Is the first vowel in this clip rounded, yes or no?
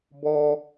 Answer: yes